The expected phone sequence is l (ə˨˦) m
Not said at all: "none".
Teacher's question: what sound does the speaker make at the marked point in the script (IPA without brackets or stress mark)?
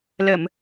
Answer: ə˧˩˨